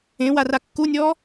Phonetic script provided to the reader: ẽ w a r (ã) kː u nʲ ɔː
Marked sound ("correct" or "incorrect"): incorrect